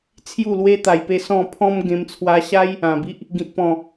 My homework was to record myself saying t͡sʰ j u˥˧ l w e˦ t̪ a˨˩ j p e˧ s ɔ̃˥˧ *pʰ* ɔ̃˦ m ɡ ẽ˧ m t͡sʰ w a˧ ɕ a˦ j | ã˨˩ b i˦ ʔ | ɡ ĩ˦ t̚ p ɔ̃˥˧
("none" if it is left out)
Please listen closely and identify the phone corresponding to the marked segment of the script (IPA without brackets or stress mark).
pʰ